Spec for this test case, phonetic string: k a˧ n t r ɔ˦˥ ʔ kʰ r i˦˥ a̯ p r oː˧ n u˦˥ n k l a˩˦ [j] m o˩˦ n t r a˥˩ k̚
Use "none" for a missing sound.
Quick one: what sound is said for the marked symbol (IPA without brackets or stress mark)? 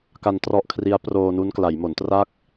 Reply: j